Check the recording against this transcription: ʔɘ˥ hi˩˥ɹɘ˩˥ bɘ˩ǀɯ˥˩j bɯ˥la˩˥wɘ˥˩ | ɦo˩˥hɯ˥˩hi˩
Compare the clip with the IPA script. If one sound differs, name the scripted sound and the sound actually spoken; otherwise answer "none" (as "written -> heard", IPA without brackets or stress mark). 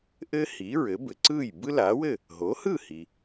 none